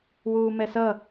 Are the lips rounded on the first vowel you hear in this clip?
yes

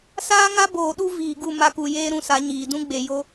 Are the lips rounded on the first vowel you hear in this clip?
no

